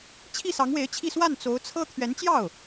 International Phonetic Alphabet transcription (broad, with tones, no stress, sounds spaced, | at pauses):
t͡ɕʰ i˥˩ s ɑ˧˥ ŋ w e˧˥ ɪ̯ t͡ɕʰ i˥˧ s w a˥˩ n t͡s o˧˥ ʊ̯ t͡sʰ ɤ˥ t̪ʰ ɥ ɛ˧˥ n t͡ɕ j ɑ˥˩ ʊ̯